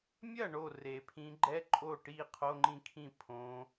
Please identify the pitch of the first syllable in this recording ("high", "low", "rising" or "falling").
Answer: falling